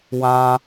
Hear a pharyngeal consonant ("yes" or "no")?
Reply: no